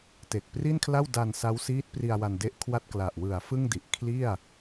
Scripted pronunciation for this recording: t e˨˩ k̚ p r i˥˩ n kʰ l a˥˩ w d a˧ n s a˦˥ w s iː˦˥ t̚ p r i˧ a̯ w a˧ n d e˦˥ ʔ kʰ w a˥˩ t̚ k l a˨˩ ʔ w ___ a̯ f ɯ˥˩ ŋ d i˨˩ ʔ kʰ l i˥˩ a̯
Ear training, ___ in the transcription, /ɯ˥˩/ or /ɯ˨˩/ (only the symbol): ɯ˨˩